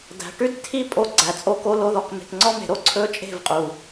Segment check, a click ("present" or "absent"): present